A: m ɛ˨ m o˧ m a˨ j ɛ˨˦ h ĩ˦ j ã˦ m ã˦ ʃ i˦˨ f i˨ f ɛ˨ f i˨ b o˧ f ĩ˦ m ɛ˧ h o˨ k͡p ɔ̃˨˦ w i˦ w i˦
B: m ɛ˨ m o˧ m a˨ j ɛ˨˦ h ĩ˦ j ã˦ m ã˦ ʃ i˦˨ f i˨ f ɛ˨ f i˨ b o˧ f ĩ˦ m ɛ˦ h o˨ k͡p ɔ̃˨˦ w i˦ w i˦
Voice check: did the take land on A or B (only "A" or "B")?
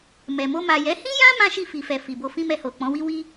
A